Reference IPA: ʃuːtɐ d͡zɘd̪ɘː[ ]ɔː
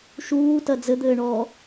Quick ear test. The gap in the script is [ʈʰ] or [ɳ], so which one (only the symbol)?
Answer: ɳ